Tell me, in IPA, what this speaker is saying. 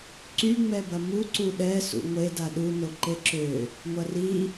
ǀyŋ͡mɛbɐ mu ǀuɗɛ sṵŋʷeda ɗuno ǃeǁø | ŋʷɐri

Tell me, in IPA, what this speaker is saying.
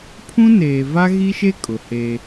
pʰũ˦ neː˨va˦ɣi˦ʃe˦ kʼʊ˨heː˦

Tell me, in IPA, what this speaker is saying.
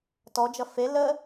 tɔd͡ʒʌ fe lə

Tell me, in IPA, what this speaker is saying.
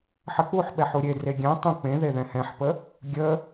ħək͡puħɓɛħ uɾʲedre ɡʲɛ̃ tˤə̃ k͡pẽðe ðɛ̃hɛ̃ħpə | ɡʲə

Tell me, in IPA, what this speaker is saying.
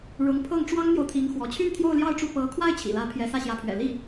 ɻʊ˧˥ŋpʰɤ˥˩ŋ ʈ͡ʂwɑ˥ŋn̪jo˨ʊ̯t̪ʰi˧˥ŋ xwɔ˧˥ t͡ɕʰy˥˧nt̪ʰjo˥˧ʊ̯ljɑ˥˧ʊ̯ʈ͡ʂu˥˩ pɤ˧˥ kʰwa˥˩ɪ̯ t͡ɕʰḭ˨˩ lä˧˥ pʰjɛ˧˥sä˥˩ɕjä˧˥pʰɥɛ̰˨˩ li˥˩

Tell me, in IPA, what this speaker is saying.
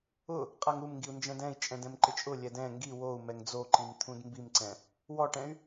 ʊ | qʼaŋumŋɡiu̯ nd͡ʒɛ̃dɛ̃i̯ t͡ʃʼɛ̃dɛ̃mǃɪt͡ʃʼʊ lʲɛdɛ̃ ŋɡi wou̯ mɛŋd͡zoǃim t̪ʰũdmbimǀɛ̃ | wɔʈɛ̃y̯

